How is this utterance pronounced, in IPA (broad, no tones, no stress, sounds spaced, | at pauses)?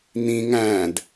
n̪ ĩ ŋ æ̃ d